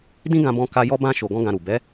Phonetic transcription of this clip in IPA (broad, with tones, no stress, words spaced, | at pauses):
dĩ˦ɡã˧bɔ̃˧ ka˧ jɔ˦bã˦ ʃo˧ɡɔ̃˦ɡã˧ɾu˨ bɛ˨˦